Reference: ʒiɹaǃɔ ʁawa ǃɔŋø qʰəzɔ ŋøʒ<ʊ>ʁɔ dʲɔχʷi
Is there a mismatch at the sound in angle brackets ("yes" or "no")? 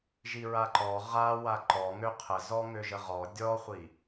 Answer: yes